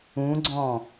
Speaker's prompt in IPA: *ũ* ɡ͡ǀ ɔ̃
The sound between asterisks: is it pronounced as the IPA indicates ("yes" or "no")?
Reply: yes